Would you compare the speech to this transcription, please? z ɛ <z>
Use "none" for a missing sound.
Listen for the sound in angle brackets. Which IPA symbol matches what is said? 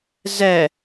none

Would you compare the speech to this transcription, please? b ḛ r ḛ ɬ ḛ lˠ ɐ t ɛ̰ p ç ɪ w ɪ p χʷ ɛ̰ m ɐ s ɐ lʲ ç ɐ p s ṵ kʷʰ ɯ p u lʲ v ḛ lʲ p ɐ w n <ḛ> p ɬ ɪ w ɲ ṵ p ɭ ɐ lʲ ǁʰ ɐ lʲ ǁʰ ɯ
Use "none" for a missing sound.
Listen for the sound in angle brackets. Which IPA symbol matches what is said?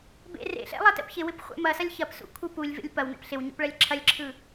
ɛ̰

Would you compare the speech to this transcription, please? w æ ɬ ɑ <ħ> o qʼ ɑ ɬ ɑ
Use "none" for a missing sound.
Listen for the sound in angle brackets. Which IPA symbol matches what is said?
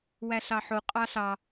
ħ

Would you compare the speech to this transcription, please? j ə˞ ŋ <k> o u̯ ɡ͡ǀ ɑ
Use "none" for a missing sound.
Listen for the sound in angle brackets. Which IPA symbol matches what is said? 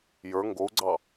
ɡ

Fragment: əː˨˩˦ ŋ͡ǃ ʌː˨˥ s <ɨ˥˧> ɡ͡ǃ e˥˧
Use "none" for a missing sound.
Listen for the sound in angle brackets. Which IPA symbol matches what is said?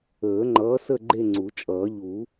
ə˥˧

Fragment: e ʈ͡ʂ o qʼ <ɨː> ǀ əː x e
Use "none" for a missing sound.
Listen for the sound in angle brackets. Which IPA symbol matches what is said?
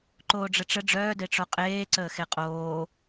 eː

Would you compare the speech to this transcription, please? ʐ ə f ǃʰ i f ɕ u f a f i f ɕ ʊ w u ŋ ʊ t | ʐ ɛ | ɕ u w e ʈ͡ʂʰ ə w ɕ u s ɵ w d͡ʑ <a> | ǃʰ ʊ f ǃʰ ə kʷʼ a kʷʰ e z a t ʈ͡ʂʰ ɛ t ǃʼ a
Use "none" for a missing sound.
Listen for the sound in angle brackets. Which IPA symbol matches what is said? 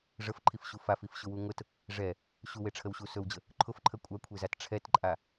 ə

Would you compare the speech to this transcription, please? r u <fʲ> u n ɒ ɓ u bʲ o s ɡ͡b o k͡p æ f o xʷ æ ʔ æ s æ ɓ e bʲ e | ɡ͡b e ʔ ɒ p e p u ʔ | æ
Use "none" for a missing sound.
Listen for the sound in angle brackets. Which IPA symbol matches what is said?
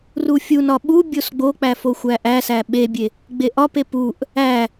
fʲ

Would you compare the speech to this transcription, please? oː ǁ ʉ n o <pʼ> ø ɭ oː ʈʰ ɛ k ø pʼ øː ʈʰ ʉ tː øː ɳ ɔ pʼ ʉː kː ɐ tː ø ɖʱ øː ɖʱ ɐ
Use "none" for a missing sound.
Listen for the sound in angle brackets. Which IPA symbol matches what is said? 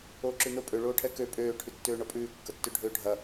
pʼ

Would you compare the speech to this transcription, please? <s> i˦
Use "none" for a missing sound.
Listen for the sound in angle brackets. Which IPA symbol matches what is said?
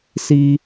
s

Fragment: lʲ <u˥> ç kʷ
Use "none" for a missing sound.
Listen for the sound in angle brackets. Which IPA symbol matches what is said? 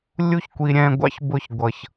u˥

